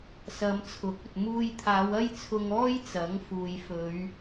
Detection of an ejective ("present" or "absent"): absent